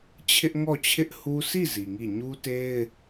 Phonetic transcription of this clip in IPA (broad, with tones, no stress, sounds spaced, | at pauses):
t͡ɕʰ ɪ˦ ʔ ŋ ɔ˦˨ t͡ɕʰ ɪ˦ ʔ h u˦ sʰ i˦˨ z i˨ ŋ i˦˨ ɲ u˦ t e˦ ɪ̯